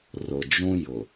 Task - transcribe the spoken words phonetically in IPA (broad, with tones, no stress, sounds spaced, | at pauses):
r ʊ˨ d͡ʒ ũ˦ j ʊ˨